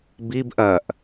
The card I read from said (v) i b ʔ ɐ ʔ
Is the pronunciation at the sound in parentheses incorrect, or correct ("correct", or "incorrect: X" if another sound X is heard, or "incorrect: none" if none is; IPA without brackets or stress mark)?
incorrect: b